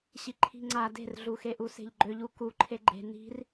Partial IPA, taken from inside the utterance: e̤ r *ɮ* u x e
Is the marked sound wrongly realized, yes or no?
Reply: no